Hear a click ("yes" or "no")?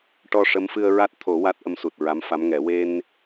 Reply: no